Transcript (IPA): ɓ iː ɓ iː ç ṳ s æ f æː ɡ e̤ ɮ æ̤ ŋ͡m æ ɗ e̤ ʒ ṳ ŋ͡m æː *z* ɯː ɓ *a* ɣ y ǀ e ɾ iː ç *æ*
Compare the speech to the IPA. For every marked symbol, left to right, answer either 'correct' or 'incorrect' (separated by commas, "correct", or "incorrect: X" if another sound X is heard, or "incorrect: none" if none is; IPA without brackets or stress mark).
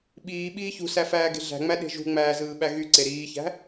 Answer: correct, incorrect: æ, incorrect: æ̤